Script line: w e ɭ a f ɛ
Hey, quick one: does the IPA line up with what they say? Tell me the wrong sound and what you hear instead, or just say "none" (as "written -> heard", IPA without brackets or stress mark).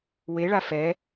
none